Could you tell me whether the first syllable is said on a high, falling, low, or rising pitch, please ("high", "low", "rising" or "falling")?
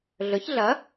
rising